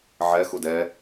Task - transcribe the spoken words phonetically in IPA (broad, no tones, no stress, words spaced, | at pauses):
ʕɛxu dɛ